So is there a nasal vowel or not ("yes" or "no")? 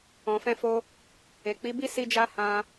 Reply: yes